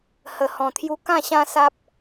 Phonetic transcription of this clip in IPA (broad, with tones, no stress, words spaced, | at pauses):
hə˨˩ hɔ̃˨˩t̪ʰju˧ kã˥˧ɕã˦sa˦p̚